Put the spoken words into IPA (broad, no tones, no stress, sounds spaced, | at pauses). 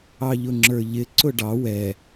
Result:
ɑ ʎ ʊ ŋ͡ǁ ə˞ ʎ ɪ ǀ ʊ ɖ ɑ w ɛ